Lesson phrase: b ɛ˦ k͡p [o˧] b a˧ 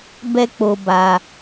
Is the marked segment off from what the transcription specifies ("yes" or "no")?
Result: no